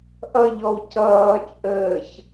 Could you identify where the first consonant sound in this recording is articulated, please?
glottal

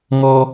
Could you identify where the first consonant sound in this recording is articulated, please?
velar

